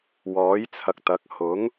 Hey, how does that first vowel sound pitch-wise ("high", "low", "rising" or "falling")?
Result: rising